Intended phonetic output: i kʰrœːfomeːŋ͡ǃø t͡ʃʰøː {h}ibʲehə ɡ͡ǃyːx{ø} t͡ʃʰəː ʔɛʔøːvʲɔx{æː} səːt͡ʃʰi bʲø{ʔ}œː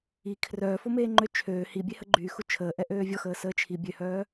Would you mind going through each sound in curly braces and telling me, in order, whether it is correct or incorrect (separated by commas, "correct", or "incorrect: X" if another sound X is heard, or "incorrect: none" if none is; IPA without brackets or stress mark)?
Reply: correct, incorrect: u, incorrect: əː, incorrect: h